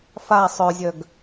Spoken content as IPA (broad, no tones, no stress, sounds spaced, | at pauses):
f a sˤ œ zʲ œ ɡ